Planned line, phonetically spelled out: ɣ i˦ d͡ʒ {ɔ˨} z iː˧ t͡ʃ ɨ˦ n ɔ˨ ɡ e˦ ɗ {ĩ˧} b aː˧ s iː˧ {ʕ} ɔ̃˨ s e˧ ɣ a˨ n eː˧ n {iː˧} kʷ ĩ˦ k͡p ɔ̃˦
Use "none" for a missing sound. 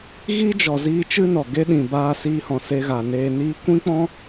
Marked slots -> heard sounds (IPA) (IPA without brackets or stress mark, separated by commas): ɔ˨, ĩ˨, h, iː˦